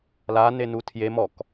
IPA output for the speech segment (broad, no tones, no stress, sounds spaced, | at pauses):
l a n e n u tʰ j e m ɔ k